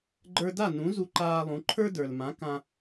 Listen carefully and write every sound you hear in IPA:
ɡ͡ǃ ə˞˧ d a˥˩ n ũ˩˥ z u˧ ǃ aː˧ lˠ ũ˩˥ ǃʰ ə˞˥ d ə˞˩ l m ã˩˥ k ã˧

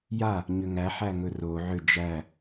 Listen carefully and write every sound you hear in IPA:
j a | ɲ ʏ ŋ æ ħ æ ŋ ɵ r o ʕ ʏ d͡ʒ æ

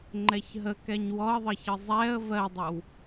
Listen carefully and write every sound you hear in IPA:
ŋ͡ǃ ɛ ç ɦ ə k ɛ ɲ w ɔ ə̯ ðˤ ə ç ə zˤ ɛ ə̯ v ɜ dˤ ə w

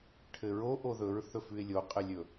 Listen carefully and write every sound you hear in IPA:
ʈʰ ɘ ɹ o ʔ o ð ɵ ɹ θ ɵ f ʉ ɪ̯ lʲ o qʼ ɘ lʲ ɵ

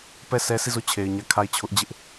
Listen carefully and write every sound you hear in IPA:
p ɛ˦˨ s ɛ˦ sʰ i˦˨ z o˦˨ t͡ɕʰ e˨ ɪ̯ ɲ ä˦˨ kʰ a˦˨ ɪ̯ t͡ɕʰ ʊ˦ ʔ d͡ʑ ɪ˦ ʔ

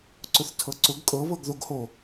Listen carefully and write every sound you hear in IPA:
ǀ ʊ θ tʰ ɤ ǀ ʊ ɡ kʼ ɤ β ɤ ɡ ð o ɡ h o

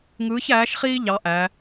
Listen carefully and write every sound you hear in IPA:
ŋ ɯː˧˥ ç æː˧˥ ʃ χ iː˥ ʎ ɑ˧˥ ʔ æ˩˧

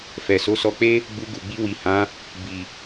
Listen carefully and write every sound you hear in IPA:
f ɛ˨ s o˨˦ s ɔ˧ k͡p e˦ | ɡ͡b u˧ ɡ u˨ ɡ͡b i˧ w i˨ h ã˨˦ | b i˨

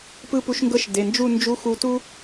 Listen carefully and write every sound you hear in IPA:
p ɯ˥ p u˧˥ ʃ ŋ ɡ ɤ˥ ʃ d e˩˧˩ n d͡ʒ u˥˧ n d͡ʒ u˧˥ x u˧ t u˥

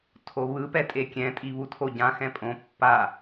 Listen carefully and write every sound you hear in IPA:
tʰ o β ɯ p ɛ tʼ e kʲ ɛ̃ tʼ i β u tʰ o ɟ ã x ɛ̃ pʼ õ pː a

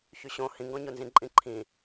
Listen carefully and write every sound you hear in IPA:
ç y ɕ õ h ĩ ŋ ɡ ɔ̃ ɲ o n z ĩ ǃʼ ĩ ǃʰ ĩ

